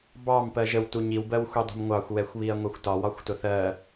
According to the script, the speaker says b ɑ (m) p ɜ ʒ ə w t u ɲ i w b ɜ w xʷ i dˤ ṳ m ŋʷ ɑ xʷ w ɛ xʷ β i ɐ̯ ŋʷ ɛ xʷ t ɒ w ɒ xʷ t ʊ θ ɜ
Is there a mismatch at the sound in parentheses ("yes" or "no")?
no